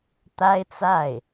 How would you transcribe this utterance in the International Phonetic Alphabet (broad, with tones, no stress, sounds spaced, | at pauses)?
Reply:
t̪ a˥ ɪ̯ t͡s a˥˩ ɪ̯